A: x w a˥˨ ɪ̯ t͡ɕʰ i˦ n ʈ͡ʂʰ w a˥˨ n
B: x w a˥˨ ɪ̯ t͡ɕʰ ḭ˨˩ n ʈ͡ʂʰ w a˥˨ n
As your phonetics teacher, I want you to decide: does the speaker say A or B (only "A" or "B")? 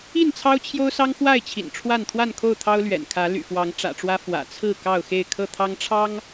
B